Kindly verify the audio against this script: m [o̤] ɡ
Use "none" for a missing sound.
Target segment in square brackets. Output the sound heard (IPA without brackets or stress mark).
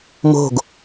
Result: o̤